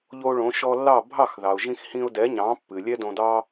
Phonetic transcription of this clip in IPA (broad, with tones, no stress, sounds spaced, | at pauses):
ʎ o˧ ɭ õ˩˥ ʃ ɔ˧ lː ɑ˥˩ bʱ ɑ˥˩ x ð ɑ˩ ʊ̯ ʒ ĩ˧ x h ĩ˧ ʊ̯ d ɛ˩˥ ɲ ɑ̃˩˥ pː ɨ˩ lʲ ɛ˥ d õ˧ d ɑ˥